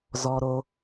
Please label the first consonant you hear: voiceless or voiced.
voiced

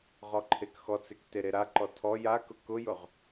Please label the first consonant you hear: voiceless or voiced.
voiced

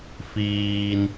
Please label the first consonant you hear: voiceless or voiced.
voiceless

